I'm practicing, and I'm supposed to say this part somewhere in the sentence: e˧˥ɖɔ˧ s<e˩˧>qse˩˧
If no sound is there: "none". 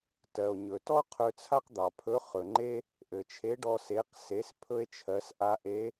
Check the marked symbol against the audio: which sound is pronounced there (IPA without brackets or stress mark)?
e˩˧